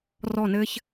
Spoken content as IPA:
r ɔ˧˩ n ɘː˧ ç

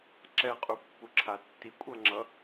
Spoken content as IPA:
ǁ ɛ qʼ u pː u ǁʰ a tː i kʷʼ ʌ ŋ͡ǁ ʌ

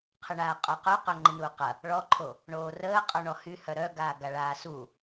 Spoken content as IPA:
qʰ ə ɳ aː qʼ o q o q œ ŋ͡ǃ ɪ n uː q ɐ | ɭ ɔ ǃʰ o | ɳ oː r əː qʼ ɔ ɳ ɔ h y h œ ɾ œ ɡ aː ɡ a ɭ aː s u

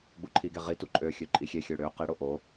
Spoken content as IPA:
ɡ͡b u ǃʰ i ɡ e ʁ i t u ǃʼ ø xʲ ø ǃʼ i xʲ e xʲ ø ɽ ø q i ɽ o ʔ o

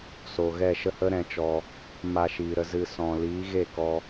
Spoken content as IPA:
s o˨ ɣ ɛ˦˨ ʃ ə˦ h ə˦ ɾ ɛ̃˧ t͡ʃ ɔ˧ | m a˧ ʃ iː˨ ɾ ə˧ z ɨ˧ s ɔ̃˨ l iː˨˦ ɣ e˦˨ k ɔ˧

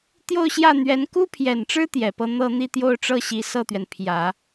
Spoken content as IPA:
t̪ j o˥˧ ʊ̯ ɕ j ä˥˩ n̪ ɥ ɛ˧˥ n k u˥ pʰ j ɛ˨˩ n ʈ͡ʂ ɻ̩˥ t̪ j ɛ˨˩ p ɤ˥˧ n̪ ɤ˥˧ n̪ i˥˧ t̪ j o˥˧ ʊ̯ ʈ͡ʂ ɤ˥˩ ɕ i˧˥ s ɤ˥˩ t̪ ɥ ɛ˩ n pʰ j ä˨˩˦

